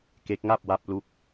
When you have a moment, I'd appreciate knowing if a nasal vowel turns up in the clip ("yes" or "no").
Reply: no